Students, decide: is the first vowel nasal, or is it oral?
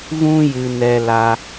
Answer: nasal